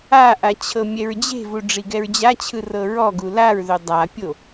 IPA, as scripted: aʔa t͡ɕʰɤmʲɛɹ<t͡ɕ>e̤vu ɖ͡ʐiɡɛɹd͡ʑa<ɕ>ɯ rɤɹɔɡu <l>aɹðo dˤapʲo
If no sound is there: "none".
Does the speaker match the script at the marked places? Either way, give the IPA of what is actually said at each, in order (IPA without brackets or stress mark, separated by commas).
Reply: d͡ʑ, t͡ɕʰ, l